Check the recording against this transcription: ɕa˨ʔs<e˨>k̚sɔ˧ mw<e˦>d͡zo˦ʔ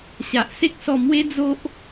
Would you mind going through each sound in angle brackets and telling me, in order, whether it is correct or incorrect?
incorrect, correct

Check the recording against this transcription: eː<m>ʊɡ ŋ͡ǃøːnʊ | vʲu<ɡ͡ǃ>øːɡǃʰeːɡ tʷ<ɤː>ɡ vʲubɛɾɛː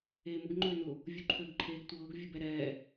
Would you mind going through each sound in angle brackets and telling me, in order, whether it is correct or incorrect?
correct, incorrect, correct

